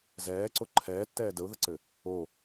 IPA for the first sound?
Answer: z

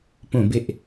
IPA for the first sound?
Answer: p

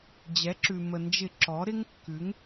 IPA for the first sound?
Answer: d͡ʑ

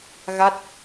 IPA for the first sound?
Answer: ɣ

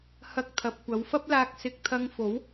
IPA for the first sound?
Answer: h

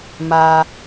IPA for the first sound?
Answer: m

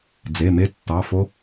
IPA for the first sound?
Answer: d͡z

